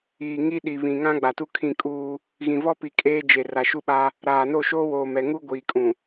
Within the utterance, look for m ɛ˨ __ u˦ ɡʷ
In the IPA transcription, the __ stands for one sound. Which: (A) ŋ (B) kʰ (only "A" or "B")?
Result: A